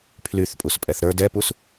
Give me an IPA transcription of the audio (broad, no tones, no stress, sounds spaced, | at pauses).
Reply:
pʰ l y θ pʼ u s pʼ ɛ θ ɾ ə˞ d ɛ p u s